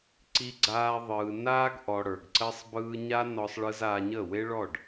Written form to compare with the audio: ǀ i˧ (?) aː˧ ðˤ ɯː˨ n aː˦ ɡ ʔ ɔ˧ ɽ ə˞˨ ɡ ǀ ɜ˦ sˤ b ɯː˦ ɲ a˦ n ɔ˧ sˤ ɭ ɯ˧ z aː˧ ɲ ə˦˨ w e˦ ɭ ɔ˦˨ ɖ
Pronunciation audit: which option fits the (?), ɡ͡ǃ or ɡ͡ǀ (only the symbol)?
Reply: ɡ͡ǀ